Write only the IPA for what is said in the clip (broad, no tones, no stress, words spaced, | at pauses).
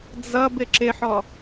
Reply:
d͡zʌb ɪǁɪħɔ